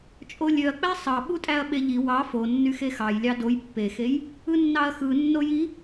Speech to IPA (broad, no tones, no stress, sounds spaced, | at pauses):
t͡ʃʼ o lʲ ø ɐ̯ k͡p æ sˤ ɑ ɓ u tʼ æ ɐ̯ ɓ e ʎ i w ɑ f o nː y x e x ɑ j lʲ ɑ d o j pː e x e j | ɯ nː ɑ ɐ̯ x ɯ nː o j i